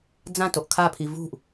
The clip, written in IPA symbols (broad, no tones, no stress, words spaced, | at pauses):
d͡zãtoʔ kʰapʰi vṳʔ